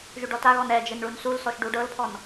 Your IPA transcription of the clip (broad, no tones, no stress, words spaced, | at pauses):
ʒyɖɔtaɣɔn ɛd͡ʒɘn ɭunsulsɔʃ ɖuɖɤlpʰɔn